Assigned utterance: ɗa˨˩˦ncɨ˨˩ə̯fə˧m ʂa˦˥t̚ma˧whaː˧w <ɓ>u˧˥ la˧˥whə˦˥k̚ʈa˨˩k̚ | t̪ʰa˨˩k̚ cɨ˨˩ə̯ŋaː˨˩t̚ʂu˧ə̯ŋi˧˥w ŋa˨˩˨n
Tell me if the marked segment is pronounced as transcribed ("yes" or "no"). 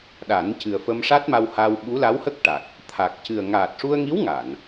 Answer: yes